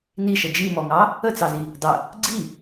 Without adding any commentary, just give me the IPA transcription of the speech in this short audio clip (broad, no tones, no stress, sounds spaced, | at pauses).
n i ʃ ə d͡ʒ i m ɔ ŋ ɑ | ə t͡s ɑ z i | dˤ ə | ɡ͡ǀ i